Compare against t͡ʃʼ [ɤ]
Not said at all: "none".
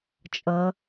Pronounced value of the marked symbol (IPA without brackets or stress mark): ɤ